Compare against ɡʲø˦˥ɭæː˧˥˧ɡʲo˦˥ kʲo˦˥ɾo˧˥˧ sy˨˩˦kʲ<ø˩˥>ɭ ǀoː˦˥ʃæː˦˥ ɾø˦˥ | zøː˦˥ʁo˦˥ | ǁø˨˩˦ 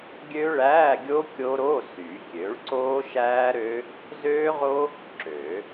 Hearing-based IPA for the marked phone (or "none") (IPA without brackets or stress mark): ø˩˥